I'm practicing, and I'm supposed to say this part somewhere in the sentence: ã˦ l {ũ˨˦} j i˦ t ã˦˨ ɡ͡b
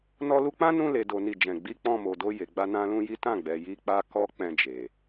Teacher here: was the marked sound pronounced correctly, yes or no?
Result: no